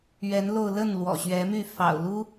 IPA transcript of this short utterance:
ɥɛ˨˦nlo˧ʊ̯lə˥˨n lwɔ̰˨˩ɕɥɛ˨˦my˥˨ fɑ̰˨˩ʊ̯lu˦

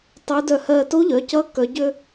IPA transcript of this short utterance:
tˤuː˧˥dœ˥˩ hɜː˧ to˧˥ʎœ˩˧˩cʌ˧˥ kœ˧˥ɟø˥

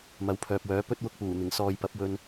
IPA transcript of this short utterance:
mɐ˨˥wpʰœː˨p̚wœː˨˥ pɵ˥t̚ wʊ˧k̚puː˨˩n̪ɪ˨˩ŋ sɔː˨jpɐ˨˥p̚ wɵ˧n

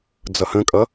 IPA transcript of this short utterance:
d͡zʌhə̃kʼʌ

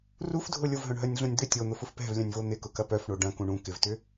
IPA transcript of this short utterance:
rufdʱʊ lʲʊvɦœ̃ɳɦœnʲɮũnʲ d̪ʏ tʲon̪ʊfʊf pɛ̤vlʲœ̃nʲvo n̪ɪkʊkɐ pœfɳo ɖɐ̃kũ ɳũ kɪvtʏ

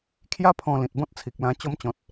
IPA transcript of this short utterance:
kʰja˦pʰɔ̃˧ lĩ˨t̚bɔ̃˦t̚t͡sʰi˨k̚lã˧ t͡ɕɔ˧mt͡ɕɔ̃˨t̚

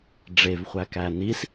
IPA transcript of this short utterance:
ɖ͡ʐevχʷækæ nis

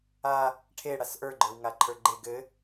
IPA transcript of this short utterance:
a | ʈʰe ɽasʔə˞ɡ͡ǃə˞w ŋaǃʰə˞ɡ͡ǃe ɡɘ

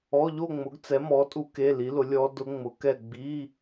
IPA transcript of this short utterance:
ɔ˧˥˧ʎo˥˧ŋ͡mʊ˨˥ɡ t͡sɛ˨˥mɔ˨˥ tʼu˦˥ke˧˥˧li˨˥lʊ˨˥ lʲɔ˦˥ dʊ˦˥ŋ͡mʊ˨˥kɛ˥˧ ɡ͡bi˧˥˧

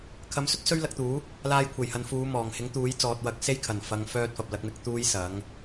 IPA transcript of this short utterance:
kʰɐ˨˧msɵ˥t̚ sɵ˥ɥlɐ˧k̚t̪uː˨˥ | laː˧jkʷʰe˨˩jhɐ˨n fuː˨˧mɔː˨˩ŋhɪ˨˥ŋt̪uː˨˥j t͡sɔː˨t̚wɐ˨˥k̚ se˥jkʰɐ˨˩n fɐ˨˧ŋ fœː˥t̚fɐ˨p̚lɐ˨˥k̚mɪ˧k̚ t̪uː˥jsɐ˨˥ŋ

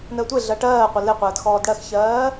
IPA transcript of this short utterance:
nəːtʷeɮɜ ʈɜː qʷəleqʷəːd xɔːdɽɜxçɜː

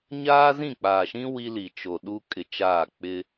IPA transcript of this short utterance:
ɲaː˦zĩ˦˨k͡paː˨ʃĩ˦ wi˦li˨t͡ʃo˨ ɗu˦kʼɪ˨t͡ʃaː˦˨ k͡pɪ˦

